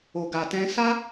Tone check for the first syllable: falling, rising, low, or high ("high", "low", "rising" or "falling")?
low